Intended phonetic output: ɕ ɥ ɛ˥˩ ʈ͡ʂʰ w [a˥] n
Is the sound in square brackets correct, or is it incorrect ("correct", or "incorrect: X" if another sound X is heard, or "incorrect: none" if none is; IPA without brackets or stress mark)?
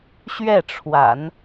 incorrect: a̰˨˩˦